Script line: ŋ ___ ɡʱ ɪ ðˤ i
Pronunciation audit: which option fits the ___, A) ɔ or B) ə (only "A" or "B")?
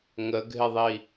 B